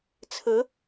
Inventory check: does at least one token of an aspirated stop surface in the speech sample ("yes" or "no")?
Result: yes